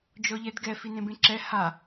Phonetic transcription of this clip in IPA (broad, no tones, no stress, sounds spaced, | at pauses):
d͡ʒ ɔ ʎ ɛ d ɡ ɛ f i n ẽ b ẽ ǁ ɛ h a